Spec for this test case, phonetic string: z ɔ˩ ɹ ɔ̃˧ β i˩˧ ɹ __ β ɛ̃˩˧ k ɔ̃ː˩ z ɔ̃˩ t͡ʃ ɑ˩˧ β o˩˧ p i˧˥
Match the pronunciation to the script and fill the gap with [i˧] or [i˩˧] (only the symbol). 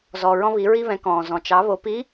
i˧